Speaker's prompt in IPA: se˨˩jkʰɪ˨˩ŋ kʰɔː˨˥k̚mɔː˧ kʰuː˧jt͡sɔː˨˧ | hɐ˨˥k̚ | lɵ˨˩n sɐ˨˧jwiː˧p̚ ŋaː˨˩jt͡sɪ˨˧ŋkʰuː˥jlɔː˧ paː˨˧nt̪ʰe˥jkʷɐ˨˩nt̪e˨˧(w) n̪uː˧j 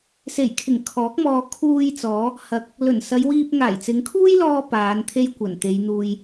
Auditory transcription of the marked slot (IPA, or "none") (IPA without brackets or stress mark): j